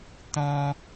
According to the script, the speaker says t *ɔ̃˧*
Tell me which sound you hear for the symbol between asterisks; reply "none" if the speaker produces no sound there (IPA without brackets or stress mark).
ɔ̃˧